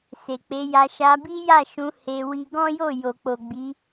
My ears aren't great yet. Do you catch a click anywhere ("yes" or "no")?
no